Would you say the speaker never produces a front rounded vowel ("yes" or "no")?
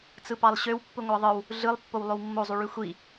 no